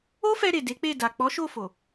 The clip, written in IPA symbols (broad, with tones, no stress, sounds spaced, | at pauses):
o˦ f ɛ˧ ɾ e˨ d e˨˦ k͡p e˦˨ d a˨ k͡p ɔ˨˦ ʃ o˦˨ f o˨